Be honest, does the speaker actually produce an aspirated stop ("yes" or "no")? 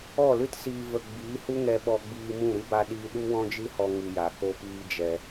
no